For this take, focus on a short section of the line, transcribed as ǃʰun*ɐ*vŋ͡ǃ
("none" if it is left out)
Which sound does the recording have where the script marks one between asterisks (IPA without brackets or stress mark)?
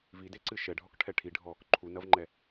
ɐ